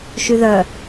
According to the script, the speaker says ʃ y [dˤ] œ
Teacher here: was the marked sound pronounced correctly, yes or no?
no